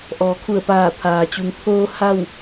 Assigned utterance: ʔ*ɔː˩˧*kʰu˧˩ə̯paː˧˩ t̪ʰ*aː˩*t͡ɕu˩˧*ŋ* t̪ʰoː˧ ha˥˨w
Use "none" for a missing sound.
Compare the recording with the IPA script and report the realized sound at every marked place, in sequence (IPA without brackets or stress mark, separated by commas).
ɔː˩˧, aː˩, ŋ